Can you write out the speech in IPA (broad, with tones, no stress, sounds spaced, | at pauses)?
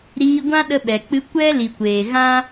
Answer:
ɾ iː˧ ɡʷ ã˦ ɗ ə˧ ɓ ɛ˨ k͡p ɨ˧ kʷ ɛ˦ l i˨ kʷ eː˨ ɣ ã˦